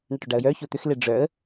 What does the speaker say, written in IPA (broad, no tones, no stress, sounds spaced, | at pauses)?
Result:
ɳ ɐ ʈ ø ɖ a ə̯ j œ ç o t̪ ʏ x l e ɖ͡ʐ œ ə̯